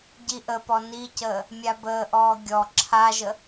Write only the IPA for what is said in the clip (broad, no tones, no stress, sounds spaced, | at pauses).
ɟ i ʔ ə p ɔ n i c əː | mʲ a b əː ʔ ɔː ɡʲ ɔ ǁʰ a ʒ ə